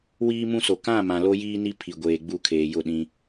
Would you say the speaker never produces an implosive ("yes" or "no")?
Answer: no